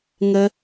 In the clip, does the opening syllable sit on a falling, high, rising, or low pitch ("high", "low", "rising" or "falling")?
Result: high